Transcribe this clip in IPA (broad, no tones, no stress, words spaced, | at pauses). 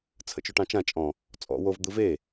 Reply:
t͡sʰə̰t͡ʃoʈɑ̃t͡ʃã t͡ʃʼɔ̃ | t͡sʼɔ̰ wov d̪ɯve